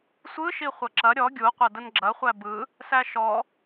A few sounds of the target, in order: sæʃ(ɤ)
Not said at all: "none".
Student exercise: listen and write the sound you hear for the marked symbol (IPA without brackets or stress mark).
ɔ